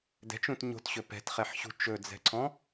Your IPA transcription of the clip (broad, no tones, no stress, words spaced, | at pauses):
dɛ̤t͡ʃũt ɲo̤tɕɵ pɛ̤tχɛħɕṳ t͡ʃɵd͡zɛ̤ǀʰɔ̃